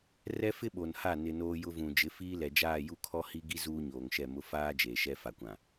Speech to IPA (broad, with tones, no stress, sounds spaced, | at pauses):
r ɛ˦ f ɪ˦ ɓ o˨ n h a˦˨ n ɪ˨ n oː˦ j ʊ˦ v ũ˨ d͡ʒ ɪ˨˦ f iː˦ l ɛ˨ d͡ʒ aː˦˨ j u˦ kʰ ɔ˦ h i˦ ɡ i˦ z uː˦ ɲ oː˨ ŋ ʃ ɛ˦˨ m ʊ˦ f aː˦ d͡ʒ eː˨ ʃ ɛ˦ f a˨ kʷ ã˨